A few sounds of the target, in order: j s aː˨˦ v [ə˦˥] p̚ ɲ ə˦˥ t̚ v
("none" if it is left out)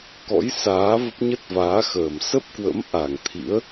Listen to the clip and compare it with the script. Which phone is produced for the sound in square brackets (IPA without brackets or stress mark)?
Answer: ə˦˥